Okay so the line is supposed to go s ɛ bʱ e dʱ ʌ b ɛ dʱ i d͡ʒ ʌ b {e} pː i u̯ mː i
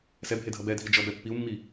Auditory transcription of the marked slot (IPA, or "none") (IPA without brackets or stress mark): ɛ